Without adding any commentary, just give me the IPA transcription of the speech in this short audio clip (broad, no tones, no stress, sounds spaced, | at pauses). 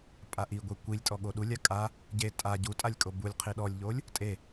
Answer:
pʼ a ʔ i ɡʷ e kʷ i lʲ tʼ ɔ ɠ o ɗ u lʲ a kʼ a | ɟ e tʼ a ɟ u tʼ a lʲ kʼ o b u lʲ qʰ i ɗ ɔ lʲ ʎ o lʲ | tʼ e